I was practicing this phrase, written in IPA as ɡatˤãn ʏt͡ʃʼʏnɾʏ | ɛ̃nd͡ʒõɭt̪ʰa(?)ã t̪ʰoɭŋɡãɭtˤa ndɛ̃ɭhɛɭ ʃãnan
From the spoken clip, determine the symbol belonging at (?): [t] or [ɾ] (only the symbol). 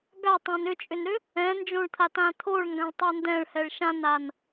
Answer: t